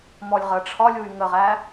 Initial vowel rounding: rounded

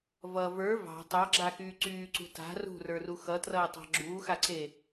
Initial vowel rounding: unrounded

